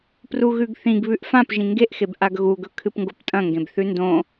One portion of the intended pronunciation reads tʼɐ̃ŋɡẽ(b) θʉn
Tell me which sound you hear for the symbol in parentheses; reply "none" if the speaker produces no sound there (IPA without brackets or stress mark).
b